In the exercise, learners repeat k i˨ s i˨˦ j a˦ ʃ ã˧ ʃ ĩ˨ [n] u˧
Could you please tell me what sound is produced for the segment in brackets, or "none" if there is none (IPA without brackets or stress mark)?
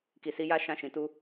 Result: t